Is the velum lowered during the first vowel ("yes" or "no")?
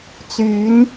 no